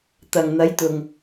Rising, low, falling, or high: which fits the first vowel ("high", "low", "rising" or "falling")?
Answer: low